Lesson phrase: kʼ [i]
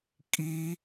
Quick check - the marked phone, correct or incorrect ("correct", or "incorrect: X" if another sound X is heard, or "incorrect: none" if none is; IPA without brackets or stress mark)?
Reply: correct